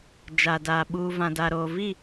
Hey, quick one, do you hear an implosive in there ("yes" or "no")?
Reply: yes